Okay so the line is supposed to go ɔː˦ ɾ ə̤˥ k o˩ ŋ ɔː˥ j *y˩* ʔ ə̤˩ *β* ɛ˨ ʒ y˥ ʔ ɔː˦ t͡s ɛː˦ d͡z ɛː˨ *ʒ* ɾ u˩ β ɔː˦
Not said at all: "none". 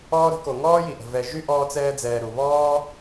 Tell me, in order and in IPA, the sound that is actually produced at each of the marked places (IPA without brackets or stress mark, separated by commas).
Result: i˩, v, none